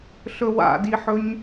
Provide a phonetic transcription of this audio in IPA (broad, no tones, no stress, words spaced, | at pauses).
ɬɵwa̰diħɵɲ